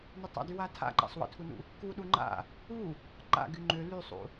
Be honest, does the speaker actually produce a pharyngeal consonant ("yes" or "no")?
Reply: no